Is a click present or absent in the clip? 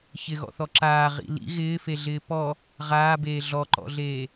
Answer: present